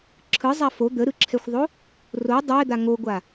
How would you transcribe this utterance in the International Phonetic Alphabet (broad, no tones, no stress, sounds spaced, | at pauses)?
ǁʰ ɯ zˤ a f o d̪ ə ɾ ɯ ǁʰ ɛ xʷ ðˤ o | r o dˤ ɛ d̪ a ŋ o ɡʷ a